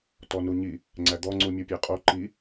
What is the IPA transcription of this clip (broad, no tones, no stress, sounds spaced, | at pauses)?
t ɔ n u ɲ i | ŋ͡ǀ æ d̪ ɔ ŋ͡ǀ u mʲ u pʲ æ qʼ o ǃ i